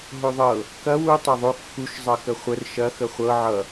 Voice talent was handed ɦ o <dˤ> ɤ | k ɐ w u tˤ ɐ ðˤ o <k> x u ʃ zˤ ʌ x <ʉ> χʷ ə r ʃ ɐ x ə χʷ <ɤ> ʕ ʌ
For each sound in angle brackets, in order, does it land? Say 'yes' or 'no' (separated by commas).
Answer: no, yes, no, yes